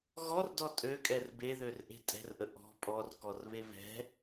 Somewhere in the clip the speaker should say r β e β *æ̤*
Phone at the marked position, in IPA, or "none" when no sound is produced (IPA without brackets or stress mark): ɛ̤